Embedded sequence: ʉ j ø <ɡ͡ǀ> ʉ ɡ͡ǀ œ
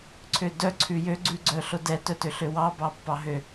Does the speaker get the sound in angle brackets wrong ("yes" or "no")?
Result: no